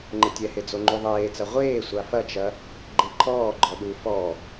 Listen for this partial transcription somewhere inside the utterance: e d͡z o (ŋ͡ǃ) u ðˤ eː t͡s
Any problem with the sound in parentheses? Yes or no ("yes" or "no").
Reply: no